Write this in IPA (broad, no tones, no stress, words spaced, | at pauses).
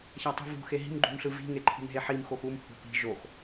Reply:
çatˤṳvṳ xeɦi̤m ɡ͡ǃṳmɬɯvi̤ ŋeǃʰi̤mɦeħim xoxum hṳpi̤ ʒox